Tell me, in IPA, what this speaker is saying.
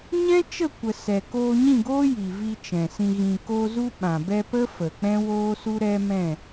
ɲ ɛ̃˦ t͡ʃ ə˦˨ kʷ ə˨ s ɛ˨ k oː˧ ɲ ĩ˦˨ ɡ oː˦ j i˨ v i˧ t͡ʃ ɛ̃˨ s ĩ˧ ɣ ĩ˨ k o˧ z u˧ ɓ ã˨ b ɛ˧ p ə˦ f ə˨ k͡p ɛ̃˦ w oː˦ s u˦ ɾ ɛ˦ m ɛ̃˦˨

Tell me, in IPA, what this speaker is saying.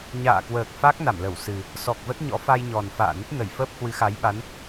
ɲ a̰ː˧˨ k w əː˨˩ k̚ f a˦˥ k̚ n a˧˩ m l ə˧˩ w s ɨ˨˩ | s ɔ˨˩ k̚ v ə˦˥ t̚ ɲ ɔ̰˧˥ f a˧ j ɲ ɔ˨˩ n f a̰ː˧˨ n ə˦˥ t̚ n ə˧˩ j f əː˦˥ p̚ h w ɨ˨˦ x a˨˦ j ɓ a˨˦ n

